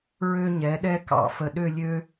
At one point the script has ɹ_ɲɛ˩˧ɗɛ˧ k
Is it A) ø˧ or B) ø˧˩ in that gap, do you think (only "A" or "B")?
A